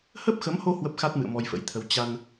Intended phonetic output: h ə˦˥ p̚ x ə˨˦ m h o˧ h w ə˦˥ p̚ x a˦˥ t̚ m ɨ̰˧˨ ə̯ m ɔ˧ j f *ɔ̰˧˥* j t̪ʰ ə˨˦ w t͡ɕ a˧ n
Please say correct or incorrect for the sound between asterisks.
incorrect